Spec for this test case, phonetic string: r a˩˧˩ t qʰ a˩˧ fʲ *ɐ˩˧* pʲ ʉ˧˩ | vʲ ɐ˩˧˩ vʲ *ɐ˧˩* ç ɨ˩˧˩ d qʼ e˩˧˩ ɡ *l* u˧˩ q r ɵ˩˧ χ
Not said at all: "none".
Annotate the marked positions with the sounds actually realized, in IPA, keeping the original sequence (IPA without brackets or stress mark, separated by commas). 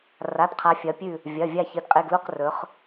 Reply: ɐ˩˧, a˧˩, l